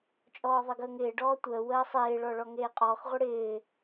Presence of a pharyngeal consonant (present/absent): absent